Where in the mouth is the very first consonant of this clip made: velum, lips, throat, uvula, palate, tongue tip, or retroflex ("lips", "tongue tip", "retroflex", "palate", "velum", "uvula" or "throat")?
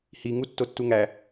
throat